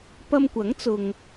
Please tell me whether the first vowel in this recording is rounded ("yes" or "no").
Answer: no